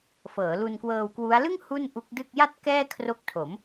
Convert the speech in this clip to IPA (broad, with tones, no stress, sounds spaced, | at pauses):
f ɤː˩˦ l u˧ n k w ɤː˧ w k w u˦˥ a̯ l ɯ˥˩ ŋ h u˥˩ n ʔ u˦˥ k̚ d ɯ˥˩ k̚ j a˥˩ t̚ k ɛː˥˩ kʰ r o˦˥ k̚ tʰ o˩˦ m